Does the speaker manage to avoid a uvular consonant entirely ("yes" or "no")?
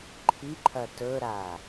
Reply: yes